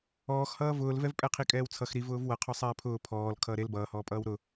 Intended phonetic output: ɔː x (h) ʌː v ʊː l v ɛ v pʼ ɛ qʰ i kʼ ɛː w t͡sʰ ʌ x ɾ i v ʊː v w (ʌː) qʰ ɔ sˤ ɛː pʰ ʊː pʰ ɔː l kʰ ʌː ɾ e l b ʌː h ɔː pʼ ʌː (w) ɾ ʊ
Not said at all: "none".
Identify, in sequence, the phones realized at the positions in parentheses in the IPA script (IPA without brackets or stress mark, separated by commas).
h, ʌ, w